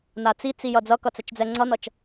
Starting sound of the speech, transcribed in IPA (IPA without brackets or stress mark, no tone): n̪